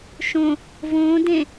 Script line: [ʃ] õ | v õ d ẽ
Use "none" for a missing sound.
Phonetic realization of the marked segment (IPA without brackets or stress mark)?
ʃ